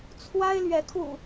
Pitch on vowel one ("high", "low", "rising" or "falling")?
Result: high